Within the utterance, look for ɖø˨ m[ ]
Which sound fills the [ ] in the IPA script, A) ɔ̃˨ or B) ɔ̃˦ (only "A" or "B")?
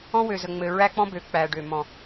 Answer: A